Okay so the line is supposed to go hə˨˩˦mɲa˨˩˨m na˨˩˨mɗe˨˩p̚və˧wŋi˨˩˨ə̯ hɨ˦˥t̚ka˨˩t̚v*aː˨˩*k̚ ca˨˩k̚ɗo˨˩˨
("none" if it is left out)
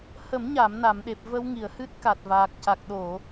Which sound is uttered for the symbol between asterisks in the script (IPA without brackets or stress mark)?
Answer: aː˨˩